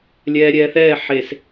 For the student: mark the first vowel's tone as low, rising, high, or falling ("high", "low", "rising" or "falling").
low